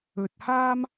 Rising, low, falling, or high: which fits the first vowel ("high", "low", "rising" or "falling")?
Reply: low